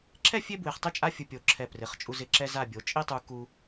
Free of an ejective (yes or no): no